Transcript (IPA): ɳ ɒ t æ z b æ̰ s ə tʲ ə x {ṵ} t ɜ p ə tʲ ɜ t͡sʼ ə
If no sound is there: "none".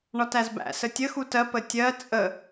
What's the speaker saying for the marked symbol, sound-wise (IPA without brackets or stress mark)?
u